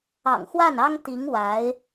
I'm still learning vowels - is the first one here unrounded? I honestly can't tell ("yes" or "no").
yes